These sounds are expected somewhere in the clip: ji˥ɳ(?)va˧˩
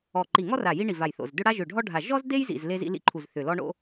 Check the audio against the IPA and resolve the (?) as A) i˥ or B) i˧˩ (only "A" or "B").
B